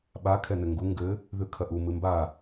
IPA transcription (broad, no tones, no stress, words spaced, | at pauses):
ɓa kʰɛnɘŋɡu ŋɡɘ | ðʉkʰɐʔu mɨmba